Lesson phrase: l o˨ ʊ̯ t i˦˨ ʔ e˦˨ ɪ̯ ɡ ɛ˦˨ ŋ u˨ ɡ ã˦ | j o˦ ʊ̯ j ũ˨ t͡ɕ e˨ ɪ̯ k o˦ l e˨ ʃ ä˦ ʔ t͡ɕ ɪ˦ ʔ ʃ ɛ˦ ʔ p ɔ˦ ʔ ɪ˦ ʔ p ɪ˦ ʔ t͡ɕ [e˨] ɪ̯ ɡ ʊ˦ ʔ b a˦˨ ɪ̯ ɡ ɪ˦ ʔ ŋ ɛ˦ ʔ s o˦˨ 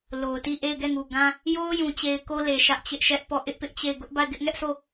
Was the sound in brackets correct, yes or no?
no